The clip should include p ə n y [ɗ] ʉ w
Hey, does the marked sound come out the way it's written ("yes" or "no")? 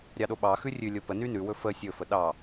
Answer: no